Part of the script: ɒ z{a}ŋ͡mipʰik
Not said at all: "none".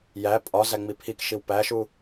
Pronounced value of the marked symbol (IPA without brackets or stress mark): æ